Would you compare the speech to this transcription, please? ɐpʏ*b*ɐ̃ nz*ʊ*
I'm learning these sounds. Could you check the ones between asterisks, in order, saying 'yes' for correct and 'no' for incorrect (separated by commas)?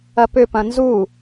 no, no